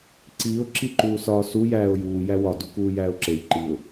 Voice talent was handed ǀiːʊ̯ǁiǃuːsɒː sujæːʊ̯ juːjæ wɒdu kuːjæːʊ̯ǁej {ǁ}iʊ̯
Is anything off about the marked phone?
yes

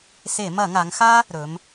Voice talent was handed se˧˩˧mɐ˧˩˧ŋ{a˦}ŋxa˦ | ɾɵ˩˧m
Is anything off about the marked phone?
yes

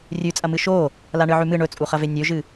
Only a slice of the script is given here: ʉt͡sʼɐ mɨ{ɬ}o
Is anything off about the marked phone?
yes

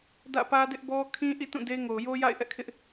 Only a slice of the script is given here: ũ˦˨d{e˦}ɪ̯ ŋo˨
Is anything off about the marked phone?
no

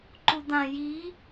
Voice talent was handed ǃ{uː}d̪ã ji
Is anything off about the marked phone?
yes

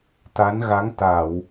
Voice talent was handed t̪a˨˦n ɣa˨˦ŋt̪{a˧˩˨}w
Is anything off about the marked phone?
no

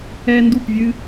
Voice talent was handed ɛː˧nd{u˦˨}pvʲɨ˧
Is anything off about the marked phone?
no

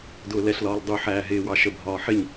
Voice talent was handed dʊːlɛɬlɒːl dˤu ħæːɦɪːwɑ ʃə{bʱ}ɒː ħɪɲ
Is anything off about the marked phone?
no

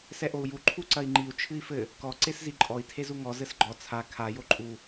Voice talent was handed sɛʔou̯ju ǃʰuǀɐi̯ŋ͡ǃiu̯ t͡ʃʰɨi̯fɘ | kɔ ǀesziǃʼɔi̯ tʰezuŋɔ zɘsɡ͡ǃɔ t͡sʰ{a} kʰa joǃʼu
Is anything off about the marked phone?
no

